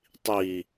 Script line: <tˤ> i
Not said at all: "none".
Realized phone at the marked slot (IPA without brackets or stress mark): tˤ